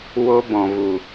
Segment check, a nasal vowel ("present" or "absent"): present